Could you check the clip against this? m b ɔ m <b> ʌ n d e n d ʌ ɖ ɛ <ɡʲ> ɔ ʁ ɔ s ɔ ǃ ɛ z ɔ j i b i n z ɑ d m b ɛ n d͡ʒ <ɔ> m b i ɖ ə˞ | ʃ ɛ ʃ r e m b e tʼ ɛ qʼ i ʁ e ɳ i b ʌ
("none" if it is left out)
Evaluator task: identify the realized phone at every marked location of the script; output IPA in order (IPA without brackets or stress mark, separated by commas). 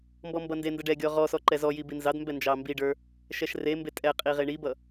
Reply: b, ɡʲ, ɑ